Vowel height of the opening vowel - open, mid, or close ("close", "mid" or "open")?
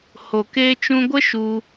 mid